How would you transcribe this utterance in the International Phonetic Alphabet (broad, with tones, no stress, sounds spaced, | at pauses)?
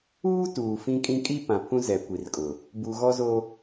uː˦ t uː˨ f ĩ˦ kʼ ĩ˦ kʼ i˦ p ã˨ pʰ ũ˦ z ɛ˨ kʷ i˨ r kʼ ʊ˨ | b u˨ ɣ ɔ˦ z o˦